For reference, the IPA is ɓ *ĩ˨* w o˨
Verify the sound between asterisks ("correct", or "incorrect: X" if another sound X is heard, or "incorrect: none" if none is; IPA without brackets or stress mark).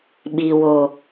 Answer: incorrect: i˨